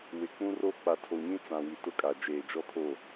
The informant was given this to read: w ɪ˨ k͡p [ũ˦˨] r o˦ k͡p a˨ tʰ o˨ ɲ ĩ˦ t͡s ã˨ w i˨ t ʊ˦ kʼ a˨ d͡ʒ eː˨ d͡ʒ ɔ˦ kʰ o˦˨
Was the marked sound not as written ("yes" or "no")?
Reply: yes